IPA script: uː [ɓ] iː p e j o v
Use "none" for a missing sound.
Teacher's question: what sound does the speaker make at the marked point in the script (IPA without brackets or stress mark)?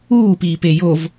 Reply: p